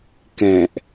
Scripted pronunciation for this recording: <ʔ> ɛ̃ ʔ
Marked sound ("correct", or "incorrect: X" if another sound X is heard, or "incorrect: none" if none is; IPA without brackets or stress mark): incorrect: k